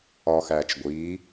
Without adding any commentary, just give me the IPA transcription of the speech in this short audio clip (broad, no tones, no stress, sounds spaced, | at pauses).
ɒ x æː t͡ʃ ɡʷ iː